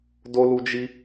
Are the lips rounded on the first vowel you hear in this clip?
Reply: yes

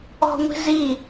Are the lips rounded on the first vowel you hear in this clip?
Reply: yes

